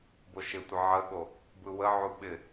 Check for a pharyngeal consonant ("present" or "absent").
present